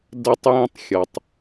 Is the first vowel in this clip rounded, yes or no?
no